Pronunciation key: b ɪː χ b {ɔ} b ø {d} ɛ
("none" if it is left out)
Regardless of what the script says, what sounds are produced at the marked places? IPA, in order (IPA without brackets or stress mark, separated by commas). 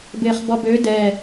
ɔ, d